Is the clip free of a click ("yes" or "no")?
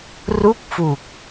yes